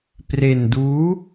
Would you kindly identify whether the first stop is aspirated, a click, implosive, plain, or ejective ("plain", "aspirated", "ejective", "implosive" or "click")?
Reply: plain